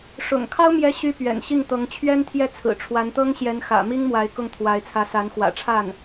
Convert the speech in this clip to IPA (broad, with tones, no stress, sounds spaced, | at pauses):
ʂ ʊ̰˨˩ ŋ kʰ ɑ˥ ʊ̯ m j ɛ˥ ɕ y˥ p ɥ ɛ̰˨˩ n ɕ i˥˩ ŋ t̪ ɤ˧˥ ŋ t͡ɕʰ ɥ ɛ˥ n t̪ʰ j ɛ˥˩ t͡sʰ ɹ̩˨˩ ʈ͡ʂʰ w a˧˥ n t̪ ɤ˥ ŋ ɕ j ɛ˧˥ n x ä̰˨˩ m i˥ ŋ m w a˧˥ ɪ̯ k ʊ˥˩ ŋ t̪ʰ w a˧˥ ɪ̯ t͡sʰ ä˧˥ s a˧˥ n x w ä̰˨˩ ʈ͡ʂʰ a˥˩ n